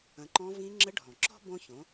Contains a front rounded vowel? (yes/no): no